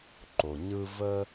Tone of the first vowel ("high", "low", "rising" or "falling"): low